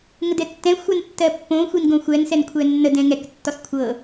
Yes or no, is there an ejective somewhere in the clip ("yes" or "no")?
no